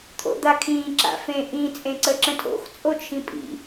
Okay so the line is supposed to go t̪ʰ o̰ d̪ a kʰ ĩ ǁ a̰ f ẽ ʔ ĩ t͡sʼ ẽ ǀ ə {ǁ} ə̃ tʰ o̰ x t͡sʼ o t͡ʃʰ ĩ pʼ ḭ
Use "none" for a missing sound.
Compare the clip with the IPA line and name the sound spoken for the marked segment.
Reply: ǁ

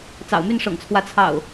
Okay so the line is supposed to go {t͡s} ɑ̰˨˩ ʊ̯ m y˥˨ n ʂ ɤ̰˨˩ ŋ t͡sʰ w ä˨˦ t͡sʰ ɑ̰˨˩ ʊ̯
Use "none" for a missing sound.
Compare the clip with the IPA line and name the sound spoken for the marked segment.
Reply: t͡s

